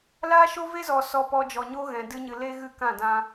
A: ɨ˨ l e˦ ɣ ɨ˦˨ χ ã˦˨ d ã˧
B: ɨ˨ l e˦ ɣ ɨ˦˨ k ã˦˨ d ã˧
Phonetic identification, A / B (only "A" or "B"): B